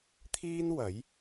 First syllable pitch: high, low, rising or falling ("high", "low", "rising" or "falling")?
high